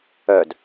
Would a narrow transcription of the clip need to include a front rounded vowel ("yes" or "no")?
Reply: yes